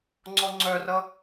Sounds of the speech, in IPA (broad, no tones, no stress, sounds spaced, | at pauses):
ŋ͡ǀ ɔ ŋ͡ǀ œ r ʌ